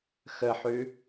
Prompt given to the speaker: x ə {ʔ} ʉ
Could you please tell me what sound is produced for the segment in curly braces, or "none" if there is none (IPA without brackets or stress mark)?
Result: ħ